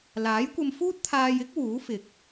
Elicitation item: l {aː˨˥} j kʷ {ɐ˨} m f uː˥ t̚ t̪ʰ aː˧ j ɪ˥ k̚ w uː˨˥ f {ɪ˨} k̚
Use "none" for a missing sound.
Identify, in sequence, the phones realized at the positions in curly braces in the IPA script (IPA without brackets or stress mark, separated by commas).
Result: aː˨˥, ɐ˧, ɪ˨